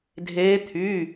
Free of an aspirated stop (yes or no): no